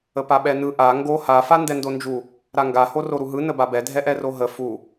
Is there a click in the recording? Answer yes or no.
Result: no